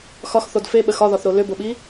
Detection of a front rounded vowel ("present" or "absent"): present